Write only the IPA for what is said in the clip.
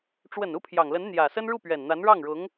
ʈ͡ʂ w ə˨˩ n u˥˩ pʰ j ɑ˨˩ ŋ l ə˧˥ n n̪ j ä˨˩ s ə˥ n ɻ u˥˩ p ɥ ɛ˨˩ n n̪ a˧˥ n ɻ ɑ˥˩ ŋ ɻ ʊ˧˥ ŋ

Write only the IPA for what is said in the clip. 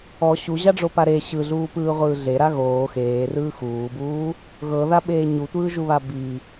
ɔ ɕ u ʑ a ɖ͡ʐ o p a ɾ e ɕ ɯ ɮ uː p ɯː ʁʷ ɯː ɮ e ɾ a ɣ oː x eː r ɯː x uː b uː | ɣ ɤ ð a ɓ eː ɲ u tʷ ɯː ʒ u β a b i

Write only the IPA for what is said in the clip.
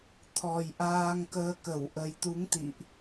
t̪ʰ ɔ˨˩ j ʔ aː˧ ŋ k əː˧ k ə˧˩ w ʔ ə˨˩ j t̪ u˨˦ ŋ t̪ ḭ˧˨ ʔ

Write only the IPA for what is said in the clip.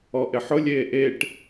ɔ ʔ ɪ ħ ʊ lʲ eː ʔ e ʈ

